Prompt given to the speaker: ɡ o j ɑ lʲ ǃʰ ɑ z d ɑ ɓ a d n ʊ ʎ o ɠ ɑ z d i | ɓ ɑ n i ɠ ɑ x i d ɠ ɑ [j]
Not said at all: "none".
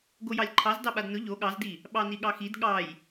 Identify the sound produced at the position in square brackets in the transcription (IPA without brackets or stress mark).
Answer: j